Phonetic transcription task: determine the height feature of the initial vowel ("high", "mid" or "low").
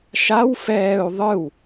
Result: low